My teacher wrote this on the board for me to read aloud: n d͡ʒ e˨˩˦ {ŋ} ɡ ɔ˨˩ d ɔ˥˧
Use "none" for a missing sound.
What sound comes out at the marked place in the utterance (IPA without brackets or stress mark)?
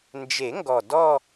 ŋ